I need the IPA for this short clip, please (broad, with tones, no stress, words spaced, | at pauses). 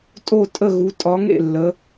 tʼo˥˨tʼə˥˨ɣu˨˦ tʼɒ˨˦ŋḛ˥˨lːə˨˦